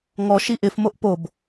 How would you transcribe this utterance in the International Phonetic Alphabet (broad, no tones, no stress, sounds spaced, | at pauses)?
ŋ ɔ ʃ i ʔ ɪ f m o ʔ p o b